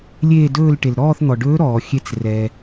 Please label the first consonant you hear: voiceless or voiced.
voiced